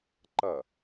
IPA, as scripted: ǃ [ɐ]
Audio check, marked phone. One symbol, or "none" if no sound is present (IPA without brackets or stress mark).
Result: ɐ